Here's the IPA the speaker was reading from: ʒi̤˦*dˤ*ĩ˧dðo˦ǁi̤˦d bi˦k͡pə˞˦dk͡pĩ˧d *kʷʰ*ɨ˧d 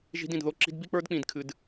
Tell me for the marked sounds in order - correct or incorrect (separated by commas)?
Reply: incorrect, incorrect